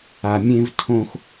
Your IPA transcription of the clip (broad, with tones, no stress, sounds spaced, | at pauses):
a˧ mʲ ẽ˥ v tʰ õ˥ x